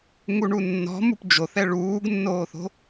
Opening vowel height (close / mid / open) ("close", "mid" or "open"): close